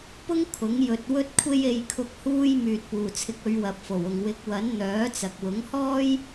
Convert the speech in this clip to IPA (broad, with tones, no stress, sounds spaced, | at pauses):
p ʊ˥ ŋ kʰ ʊ˨˥ ŋ j ɵ˧ t̚ w ɵ˥ t̚ kʷʰ e˥ j e˧ j kʰ ʊ˧ k̚ h uː˥ j m yː˨ t̚ p uː˨˩ t͡sʰ ɪ˨˥ k̚ ɵ˨˧ ɥ w ɐ˨ p̚ f o˨˩ w ʊ˨ ŋ w ɪ˨˥ k̚ w ɐ˨˥ n n̪ œː˨˥ t͡s ɐ˨ k̚ w ʊ˨˥ ŋ h ɔː˥ j